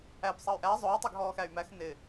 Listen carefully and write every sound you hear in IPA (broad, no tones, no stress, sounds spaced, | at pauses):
æ p sˤ ɑ y̯ ʔ æ zˤ ʊː tˤ ɪː ɡ ɦ ɔː x æ y̯ m æ x n ɪ